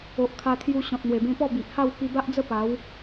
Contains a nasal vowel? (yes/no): yes